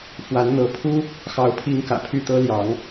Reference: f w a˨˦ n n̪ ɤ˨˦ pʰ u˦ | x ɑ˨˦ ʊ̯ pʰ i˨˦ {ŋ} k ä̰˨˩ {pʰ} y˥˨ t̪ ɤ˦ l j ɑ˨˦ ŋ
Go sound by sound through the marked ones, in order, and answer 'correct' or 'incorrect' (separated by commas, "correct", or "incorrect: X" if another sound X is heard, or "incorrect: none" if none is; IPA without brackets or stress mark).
correct, correct